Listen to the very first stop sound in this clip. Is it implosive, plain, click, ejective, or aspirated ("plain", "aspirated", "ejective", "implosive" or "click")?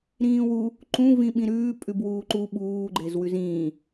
click